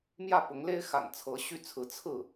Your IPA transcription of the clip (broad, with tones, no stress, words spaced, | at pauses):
mjä˥˩pʊ˧˥ŋle˥ɪ̯ xa̰˨˩nt͡sʰɤ˧˥ ɕy˥˩t͡sʰɹ̩˧˥ t͡sʰɹ̩˥˩